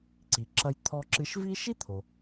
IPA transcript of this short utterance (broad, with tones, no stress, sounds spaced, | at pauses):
ǀ i˩ ǁ ɐ˧ j t̪ʰ ɔ˧ ǁ ɨ˧ ʃ v i˥ ʃ i˥ t̪ʰ o˩